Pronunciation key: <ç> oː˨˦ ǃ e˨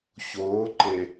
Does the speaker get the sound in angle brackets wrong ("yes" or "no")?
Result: no